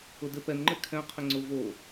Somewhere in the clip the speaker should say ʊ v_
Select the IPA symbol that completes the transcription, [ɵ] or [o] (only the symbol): o